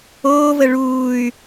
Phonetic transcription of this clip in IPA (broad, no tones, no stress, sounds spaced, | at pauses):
oː v ə ɭ uː y̯